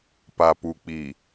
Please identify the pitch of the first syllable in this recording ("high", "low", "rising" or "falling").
low